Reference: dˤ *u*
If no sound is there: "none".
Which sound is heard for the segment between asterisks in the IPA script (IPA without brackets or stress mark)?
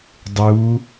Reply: u